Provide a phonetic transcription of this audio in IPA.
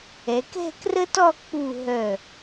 ɛ˩˧ k ɛ̤˥˧ k r ə˥ t ɔ˥˧ k͡p u˧˩ ɦ œ˧˩

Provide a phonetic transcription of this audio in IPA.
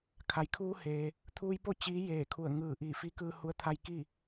kʰ a˩˧ j kʰ uː˧ h eː˩ | t̪ʰ uː˧ j p o˥˨ t͡ɕ iː˧˥ j eː˧˩ kʰ u˧˩ ə̯ ŋ ɯː˧˩ ʔ iː˧˩ f i˧˥ k ɯː˧ h u˧˥ ə̯ t̪ʰ a˧ j k i˥˨

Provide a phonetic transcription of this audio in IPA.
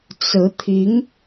t͡s ɹ̩˧˥ t̪ʰ i˧˥ ŋ

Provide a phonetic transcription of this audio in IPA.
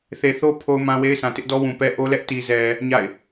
θ e˨ θ o˦ pʰ o˦ ʊ̯ m ã˦ w e˦ ɪ̯ sʰ ã˨ t ɪ˦ ʔ d ɔ˦ w ũ˨ p ɛ˦ ʔ o˦ l ɛ˦ ʔ t i˨ z ɛ˨ | ɲ a̰˦˨ ɪ̯

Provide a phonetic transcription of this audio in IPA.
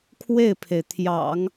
kʰ w e˥˩ ɪ̯ pʰ e˩ ɪ̯ t̪ʰ j ɑ̰˨˩˦ ŋ

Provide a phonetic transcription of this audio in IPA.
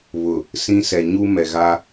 β ʊ˨ | s ĩ˦ s ɛ˨ ɲ u˦ m ɛ˨ ɣ a˦

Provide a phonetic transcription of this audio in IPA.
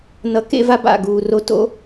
n ʌ˨ k ḛ˧ v a˦ b a̰˦˨ ɡ uː˨ r o˧ t o̰˦

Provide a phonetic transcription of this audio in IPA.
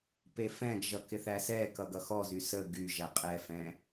p e f ɛ̃ ɡ ʒ ʌ k ɪ θ æ s ɛ k ʌ ɡ ʌ x ɔ z y s ə ɡ y ʒ æ qʼ ɛ f ɛ̃

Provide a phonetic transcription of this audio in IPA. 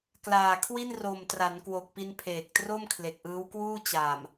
k l aː˨˩ kʰ w i˥˩ n r o˨˩ m t r a˩˦ n k w o˨˩ k̚ p i˧ n pʰ eː˨˩ k̚ t r o˥˩ m kʰ l e˨˩ k̚ ʔ ɯː˦˥ w k w uː˥˩ t͡ɕ a˨˩ m

